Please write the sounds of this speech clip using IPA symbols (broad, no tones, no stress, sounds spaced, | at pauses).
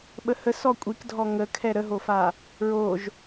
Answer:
ɓ ə h ə s ɔ kʷʼ i k dʱ ɔ ŋ ə kʰ ɛ ɾ ə ɦ o f a | ɹ o ʒ